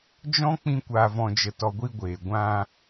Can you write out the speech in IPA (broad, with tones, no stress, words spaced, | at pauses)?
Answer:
d͡ʒɔ̃˦ k͡pĩ˦ kʷaː˧vɔ̃˧d͡ʒə˧tɔ˧ ɡʷi˧ɡʷeː˨ ɡʷã˦